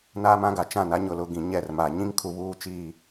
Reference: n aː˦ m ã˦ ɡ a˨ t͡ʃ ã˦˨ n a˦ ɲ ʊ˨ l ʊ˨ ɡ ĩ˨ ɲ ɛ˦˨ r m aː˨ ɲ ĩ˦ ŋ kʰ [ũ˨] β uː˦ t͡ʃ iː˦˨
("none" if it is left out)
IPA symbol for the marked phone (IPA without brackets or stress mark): u˨